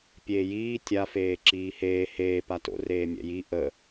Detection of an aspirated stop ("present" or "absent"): absent